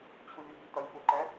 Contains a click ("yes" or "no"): yes